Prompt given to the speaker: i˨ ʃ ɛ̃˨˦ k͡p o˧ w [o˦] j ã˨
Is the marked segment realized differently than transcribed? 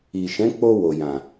yes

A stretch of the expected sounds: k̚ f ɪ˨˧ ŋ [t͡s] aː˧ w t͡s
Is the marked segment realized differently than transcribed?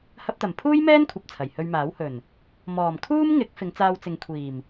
no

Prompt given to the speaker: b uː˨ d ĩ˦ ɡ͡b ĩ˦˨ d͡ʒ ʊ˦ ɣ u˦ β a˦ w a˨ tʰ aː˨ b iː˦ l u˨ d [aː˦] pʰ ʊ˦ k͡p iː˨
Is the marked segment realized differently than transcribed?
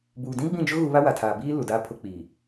no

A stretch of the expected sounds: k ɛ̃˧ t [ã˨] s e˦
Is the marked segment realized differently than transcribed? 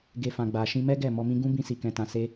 yes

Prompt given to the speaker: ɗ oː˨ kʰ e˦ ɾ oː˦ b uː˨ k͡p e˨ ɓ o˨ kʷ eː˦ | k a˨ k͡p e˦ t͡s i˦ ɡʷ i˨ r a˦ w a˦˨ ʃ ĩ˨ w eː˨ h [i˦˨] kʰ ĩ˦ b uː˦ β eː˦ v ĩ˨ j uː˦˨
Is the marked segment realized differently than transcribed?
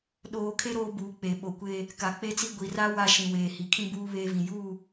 yes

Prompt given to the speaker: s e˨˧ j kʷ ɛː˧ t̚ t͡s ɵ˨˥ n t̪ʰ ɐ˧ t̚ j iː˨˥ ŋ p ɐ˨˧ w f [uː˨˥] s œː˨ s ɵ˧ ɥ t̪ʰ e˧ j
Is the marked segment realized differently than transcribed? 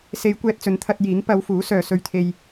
no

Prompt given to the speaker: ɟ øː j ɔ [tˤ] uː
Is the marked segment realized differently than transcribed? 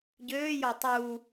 no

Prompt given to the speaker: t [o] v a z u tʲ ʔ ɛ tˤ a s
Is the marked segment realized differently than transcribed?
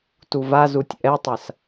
yes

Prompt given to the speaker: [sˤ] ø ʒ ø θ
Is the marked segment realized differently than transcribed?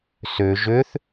yes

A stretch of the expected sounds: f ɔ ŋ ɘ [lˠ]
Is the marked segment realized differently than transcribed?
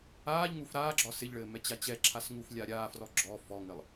no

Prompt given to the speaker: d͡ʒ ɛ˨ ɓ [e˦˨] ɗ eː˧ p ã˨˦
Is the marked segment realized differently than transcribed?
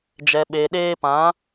yes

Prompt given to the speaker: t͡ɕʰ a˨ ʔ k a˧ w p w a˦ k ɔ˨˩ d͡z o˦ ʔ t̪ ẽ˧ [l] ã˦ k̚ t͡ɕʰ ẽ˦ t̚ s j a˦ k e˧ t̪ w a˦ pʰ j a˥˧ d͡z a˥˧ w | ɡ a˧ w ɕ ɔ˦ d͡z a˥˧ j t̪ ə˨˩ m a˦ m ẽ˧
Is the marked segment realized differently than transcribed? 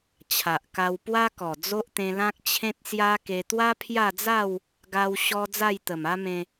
no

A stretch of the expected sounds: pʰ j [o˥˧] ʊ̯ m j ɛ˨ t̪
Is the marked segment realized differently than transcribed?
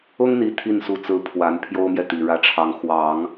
yes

